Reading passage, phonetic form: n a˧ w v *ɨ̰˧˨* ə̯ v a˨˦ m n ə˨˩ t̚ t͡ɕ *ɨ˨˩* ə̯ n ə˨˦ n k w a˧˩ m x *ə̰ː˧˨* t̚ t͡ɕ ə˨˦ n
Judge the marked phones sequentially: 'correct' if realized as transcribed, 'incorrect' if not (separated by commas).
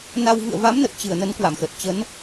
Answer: correct, incorrect, incorrect